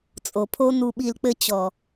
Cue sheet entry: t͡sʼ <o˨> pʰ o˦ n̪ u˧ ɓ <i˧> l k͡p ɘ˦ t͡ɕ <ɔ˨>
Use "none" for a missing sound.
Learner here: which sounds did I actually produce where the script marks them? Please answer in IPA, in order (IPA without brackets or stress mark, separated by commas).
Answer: o˨, i˧, ɔ˨